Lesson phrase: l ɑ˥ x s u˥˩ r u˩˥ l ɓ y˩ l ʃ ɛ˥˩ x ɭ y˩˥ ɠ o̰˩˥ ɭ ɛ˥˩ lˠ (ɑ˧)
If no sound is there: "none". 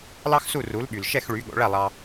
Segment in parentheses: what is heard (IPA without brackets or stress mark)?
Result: ɑ˧